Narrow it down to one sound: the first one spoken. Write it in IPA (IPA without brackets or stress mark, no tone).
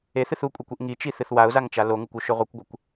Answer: e